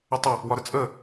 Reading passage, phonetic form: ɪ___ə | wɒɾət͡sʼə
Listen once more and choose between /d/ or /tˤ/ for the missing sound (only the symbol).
tˤ